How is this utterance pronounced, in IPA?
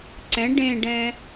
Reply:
ǀ ɛ̃ ɖ ẽ ɖ ɛ̃

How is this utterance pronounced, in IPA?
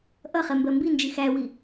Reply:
ʔ ʌ χ ɛ m b ɜ m b i n d͡ʒ i x æ w i

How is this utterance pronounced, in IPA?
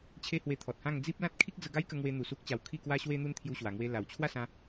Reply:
t͡ɕʰ e˦ h w e˧ t̪ʰ ɔ˨ t̚ h ã˥˧ ŋ d͡z i˦ p̚ l ã˦ t̚ kʰ i˦ k̚ d͡z ə˧ ɡ a˦ j k ə˧ ŋ w e˦ n̪ u˧ s u˦ k̚ t͡ɕ a˧ w kʰ i˥˧ k w a˦ ɕ w e˦ n̪ u˦ n t̪ʰ j u˦ ɕ w a˧ ŋ w e˦ l a˨˩ w t͡ɕʰ w a˥˧ s ã˦

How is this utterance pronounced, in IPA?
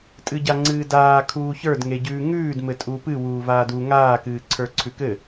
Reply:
tʼ ɨ ɟ a ŋ͡ǀ ɨː d aː kʰ uː ç ə˞ d ŋ e ɟ ʉː ŋ ʉː d m ɘ tʼ uː p ɨ w uː v aː d u ŋ aː k ɨː ǀʰ ə˞ ǀʰ ʉ k ɘ

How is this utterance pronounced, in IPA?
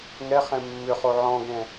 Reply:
ŋ ɛ χ ɛ̃ mː ʏ χ o ʕ ɔ̃ ɡ ɛ̃

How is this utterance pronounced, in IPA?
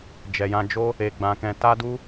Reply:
d͡ʒ ɛ˨ j ã˧ d͡ʒ o˦ | e˧ ɡ͡b ã˧ k ɛ̃˧ t a˦ d u˦

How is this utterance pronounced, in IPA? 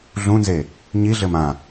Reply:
ɮ ũ n z e | ɲ i ɮ ɘ m ã

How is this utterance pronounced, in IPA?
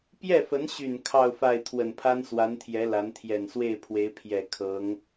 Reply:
p j ɛ˥˩ f ə˧˥ n ɕ y˨˩ n kʰ ɑ˥˧ ʊ̯ f a˥˩ ɪ̯ t̪ʰ w ə˨˩ n pʰ a˥ n s w a˧˥ n t̪ʰ j ɛ˧˥ l a˧˥ n t̪ʰ j ɛ˨˩ n s w e˥˩ ɪ̯ pʰ w e˧˥ ɪ̯ pʰ j ɛ˨˩ kʰ ɤ˧˥ ŋ

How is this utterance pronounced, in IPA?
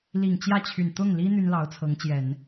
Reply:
l i˨˩ ŋ t͡ɕ j ä˥˩ t͡ɕʰ y˨˩ n t̪ ʊ˥˩ ŋ l i˥ n̪ y˥ n l ɑ˧˥ ʊ̯ t͡sʰ ɤ˧˥ ŋ t͡ɕ j ɛ˨˩˦ n

